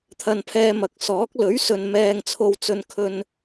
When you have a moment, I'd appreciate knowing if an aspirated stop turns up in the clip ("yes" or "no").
yes